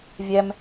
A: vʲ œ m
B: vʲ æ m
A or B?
B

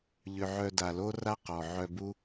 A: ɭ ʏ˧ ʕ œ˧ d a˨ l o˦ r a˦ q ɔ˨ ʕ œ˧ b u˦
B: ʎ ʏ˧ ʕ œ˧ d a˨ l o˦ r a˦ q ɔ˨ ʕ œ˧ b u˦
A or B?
B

